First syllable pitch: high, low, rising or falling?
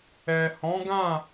low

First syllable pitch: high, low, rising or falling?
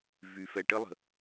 low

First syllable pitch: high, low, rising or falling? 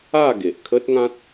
falling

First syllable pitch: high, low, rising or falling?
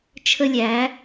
high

